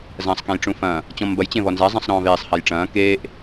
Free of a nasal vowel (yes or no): no